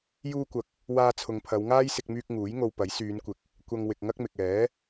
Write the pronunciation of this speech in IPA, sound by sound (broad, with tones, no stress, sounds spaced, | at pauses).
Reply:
j uː˧ kʷ ɐ˨˥ k̚ | w aː˧ t͡sʰ ʊ˨ ŋ pʰ ɐ˨˧ w ŋ aː˥ j s ɪ˧ k̚ m yː˧ k̚ ŋ uː˨˥ j ŋ o˧ w p ɐ˨˥ j s yː˨˧ n kʷ ɪ˨˥ k̚ | kʷ ɐ˧ ŋ w ɪ˨ k̚ ŋ ɐ˥ k̚ m ɪ˨ k̚ ɛː˨˥